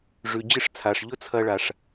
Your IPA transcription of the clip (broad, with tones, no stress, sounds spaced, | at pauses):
ʐ ʉ˩ d͡ʑ ɨ˧ ʂ t͡sʰ a˩ ʂ ʎ ɵ˥ t͡sʰ ɐ˧ ɭ a˩ ʂ